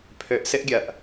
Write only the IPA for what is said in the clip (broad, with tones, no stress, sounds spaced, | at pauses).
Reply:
pʰ ø˨ ʔ s ɪ˦ ʔ ɡʲ ɐ˨ ʔ